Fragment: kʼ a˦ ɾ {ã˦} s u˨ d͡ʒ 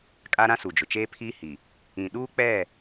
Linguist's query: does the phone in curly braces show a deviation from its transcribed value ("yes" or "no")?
no